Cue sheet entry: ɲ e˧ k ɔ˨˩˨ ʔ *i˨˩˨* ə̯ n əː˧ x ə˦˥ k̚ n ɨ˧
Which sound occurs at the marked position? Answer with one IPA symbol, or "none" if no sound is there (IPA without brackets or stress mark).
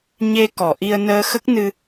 i˧